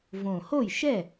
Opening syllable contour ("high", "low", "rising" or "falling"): low